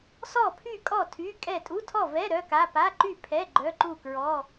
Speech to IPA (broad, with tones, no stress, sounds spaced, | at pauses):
s ɔ˥˨ pʰ y˥˨ kʼ ɔ˥˨ tʰ y˧˥˧ kʼ ɛ˥˨ tʼ u˧˥˧ tʰ ɔ˥˨ v ɛ˧˥˧ ɾ œ˧˥˧ k a˧˥˧ p a˧˥˧ ǃ y˥˨ pʰ ɛ˧˥˧ ɡ͡ǃ œ˧˥˧ ǃ u˥˨ k ɹ ɔ˧˥˧